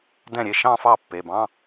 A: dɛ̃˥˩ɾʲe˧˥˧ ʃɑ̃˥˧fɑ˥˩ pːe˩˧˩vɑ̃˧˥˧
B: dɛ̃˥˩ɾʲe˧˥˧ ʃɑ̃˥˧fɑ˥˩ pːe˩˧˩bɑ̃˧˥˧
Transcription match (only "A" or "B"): B